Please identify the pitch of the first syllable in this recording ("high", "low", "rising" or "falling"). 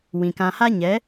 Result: low